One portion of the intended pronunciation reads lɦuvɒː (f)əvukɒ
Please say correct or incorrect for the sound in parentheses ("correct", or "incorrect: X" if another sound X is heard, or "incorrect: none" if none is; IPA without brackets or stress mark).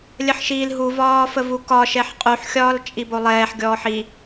correct